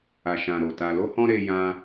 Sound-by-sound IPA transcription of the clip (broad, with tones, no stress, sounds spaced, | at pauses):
a˨ ʃ ã˨ ɾ o˨ t a˧ l o˧ h ɔ̃˧ ɾ e˧ j ã˧